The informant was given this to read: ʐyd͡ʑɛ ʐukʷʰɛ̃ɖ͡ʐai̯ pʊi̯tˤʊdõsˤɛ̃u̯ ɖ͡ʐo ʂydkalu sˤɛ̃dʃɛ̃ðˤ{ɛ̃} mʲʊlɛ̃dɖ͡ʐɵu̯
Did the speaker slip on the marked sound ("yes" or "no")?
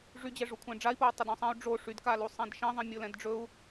no